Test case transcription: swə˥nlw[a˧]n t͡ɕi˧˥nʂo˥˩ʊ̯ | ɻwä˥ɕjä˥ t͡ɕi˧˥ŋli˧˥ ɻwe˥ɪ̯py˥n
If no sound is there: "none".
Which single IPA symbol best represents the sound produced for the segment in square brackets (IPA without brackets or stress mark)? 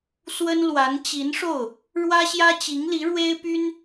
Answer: a˧˥